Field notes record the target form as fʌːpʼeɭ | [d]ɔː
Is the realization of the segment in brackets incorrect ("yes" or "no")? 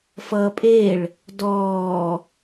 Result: no